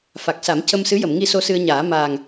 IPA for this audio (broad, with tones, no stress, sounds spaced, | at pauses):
f a˨˩ k̚ s a˨˩˦ m c ə˧ m s ɨ˧˥ j ə˨˩˨ m ŋ i˧ s o˧ s ɨ˧ ə̯ ɲ aː˨˩˦ m aː˨˩ ŋ